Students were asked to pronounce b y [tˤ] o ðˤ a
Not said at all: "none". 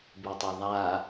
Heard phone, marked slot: tˤ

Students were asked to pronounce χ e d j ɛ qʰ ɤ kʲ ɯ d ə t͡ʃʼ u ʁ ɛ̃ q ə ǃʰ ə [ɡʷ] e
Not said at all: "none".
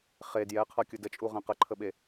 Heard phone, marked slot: ɓ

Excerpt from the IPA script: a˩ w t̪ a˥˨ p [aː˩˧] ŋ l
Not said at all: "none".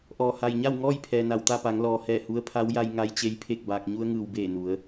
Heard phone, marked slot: a˩˧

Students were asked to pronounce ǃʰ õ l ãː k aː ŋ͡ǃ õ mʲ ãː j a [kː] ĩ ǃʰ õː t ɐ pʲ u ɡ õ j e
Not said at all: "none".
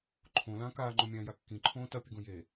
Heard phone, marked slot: kː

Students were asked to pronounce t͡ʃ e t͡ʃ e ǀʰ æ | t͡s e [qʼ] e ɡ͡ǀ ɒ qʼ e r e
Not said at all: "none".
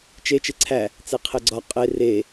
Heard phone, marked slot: qʰ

